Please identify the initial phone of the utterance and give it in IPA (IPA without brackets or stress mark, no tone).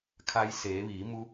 kʰ